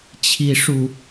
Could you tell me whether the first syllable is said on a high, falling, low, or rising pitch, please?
high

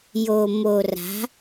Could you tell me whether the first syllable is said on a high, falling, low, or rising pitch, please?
low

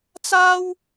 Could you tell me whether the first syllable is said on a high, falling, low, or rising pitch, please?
high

